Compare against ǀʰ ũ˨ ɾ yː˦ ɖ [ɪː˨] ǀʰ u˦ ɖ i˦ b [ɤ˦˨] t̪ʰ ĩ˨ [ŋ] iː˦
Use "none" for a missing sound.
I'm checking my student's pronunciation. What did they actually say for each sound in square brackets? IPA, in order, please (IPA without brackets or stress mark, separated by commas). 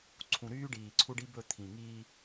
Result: iː˨, ɵ˦˨, ŋ